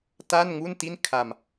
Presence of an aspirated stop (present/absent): present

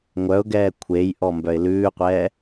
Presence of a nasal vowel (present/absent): absent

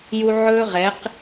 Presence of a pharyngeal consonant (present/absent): present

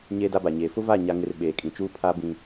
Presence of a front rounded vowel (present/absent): absent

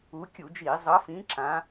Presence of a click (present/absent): present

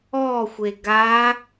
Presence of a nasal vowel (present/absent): absent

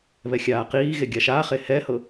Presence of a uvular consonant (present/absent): present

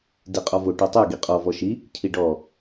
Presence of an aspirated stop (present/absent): present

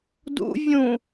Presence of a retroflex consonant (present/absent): absent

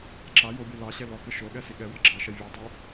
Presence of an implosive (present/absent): present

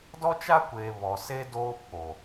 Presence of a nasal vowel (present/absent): absent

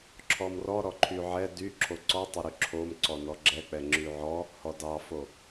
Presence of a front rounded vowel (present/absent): present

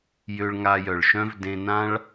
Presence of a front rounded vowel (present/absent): present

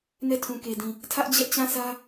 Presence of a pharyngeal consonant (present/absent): absent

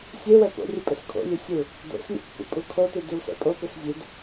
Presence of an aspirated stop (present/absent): present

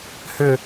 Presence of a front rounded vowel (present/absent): present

